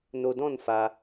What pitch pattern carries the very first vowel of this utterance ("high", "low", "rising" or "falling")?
low